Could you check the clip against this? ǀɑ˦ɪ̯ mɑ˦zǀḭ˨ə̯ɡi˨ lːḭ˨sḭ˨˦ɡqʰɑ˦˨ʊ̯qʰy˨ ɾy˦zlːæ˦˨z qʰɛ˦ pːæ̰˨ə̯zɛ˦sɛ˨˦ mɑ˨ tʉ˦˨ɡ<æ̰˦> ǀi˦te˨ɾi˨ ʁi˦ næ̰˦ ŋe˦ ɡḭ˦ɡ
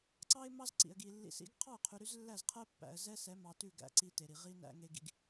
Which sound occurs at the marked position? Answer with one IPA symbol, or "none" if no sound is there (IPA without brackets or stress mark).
æ̰˨